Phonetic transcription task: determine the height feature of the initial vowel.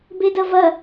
mid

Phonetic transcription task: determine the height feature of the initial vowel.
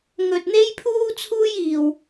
mid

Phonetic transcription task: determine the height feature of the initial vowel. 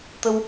mid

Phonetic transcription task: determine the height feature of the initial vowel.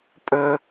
mid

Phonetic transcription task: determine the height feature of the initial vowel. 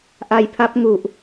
low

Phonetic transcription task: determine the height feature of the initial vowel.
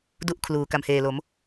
high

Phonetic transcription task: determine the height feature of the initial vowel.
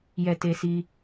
mid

